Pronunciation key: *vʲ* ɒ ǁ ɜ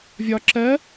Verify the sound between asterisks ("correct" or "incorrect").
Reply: correct